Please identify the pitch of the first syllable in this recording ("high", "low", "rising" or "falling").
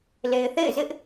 low